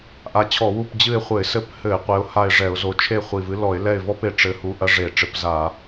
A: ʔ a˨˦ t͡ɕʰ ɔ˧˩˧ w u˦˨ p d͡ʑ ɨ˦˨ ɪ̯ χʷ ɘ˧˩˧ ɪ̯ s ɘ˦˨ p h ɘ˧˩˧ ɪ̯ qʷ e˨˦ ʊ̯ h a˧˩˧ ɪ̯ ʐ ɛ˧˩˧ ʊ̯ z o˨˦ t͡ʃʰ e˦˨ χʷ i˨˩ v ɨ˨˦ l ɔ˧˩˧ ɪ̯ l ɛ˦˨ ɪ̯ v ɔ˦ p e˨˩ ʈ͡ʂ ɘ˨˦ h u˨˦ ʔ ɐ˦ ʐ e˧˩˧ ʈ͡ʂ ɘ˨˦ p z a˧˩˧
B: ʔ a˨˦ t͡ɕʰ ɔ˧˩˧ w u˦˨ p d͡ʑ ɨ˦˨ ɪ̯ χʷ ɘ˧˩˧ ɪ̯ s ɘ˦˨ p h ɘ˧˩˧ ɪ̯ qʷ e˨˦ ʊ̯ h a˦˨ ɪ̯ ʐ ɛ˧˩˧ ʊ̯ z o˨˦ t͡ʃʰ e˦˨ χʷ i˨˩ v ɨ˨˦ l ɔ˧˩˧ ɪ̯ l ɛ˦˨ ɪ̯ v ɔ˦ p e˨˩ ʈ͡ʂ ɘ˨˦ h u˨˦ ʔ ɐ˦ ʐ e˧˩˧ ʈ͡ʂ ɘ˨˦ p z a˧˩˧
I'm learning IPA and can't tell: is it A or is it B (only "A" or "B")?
B